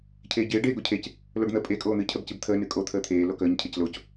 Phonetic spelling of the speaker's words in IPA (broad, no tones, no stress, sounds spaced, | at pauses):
cʰ eː ɟ eː ɖ eː ɡ o cʰ e c | l o ɖ n̪ ə pʼ e kʼ oː n̪ ɨ cʰ ə b c ɨ b t̪ʰ əː n ɨ kʼ o t̪ʰ əː t̪ʰ eː l o k əː ɲ cʰ e c l o c